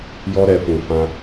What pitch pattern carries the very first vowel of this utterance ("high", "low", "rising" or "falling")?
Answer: high